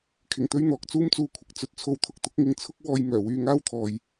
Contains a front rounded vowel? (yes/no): yes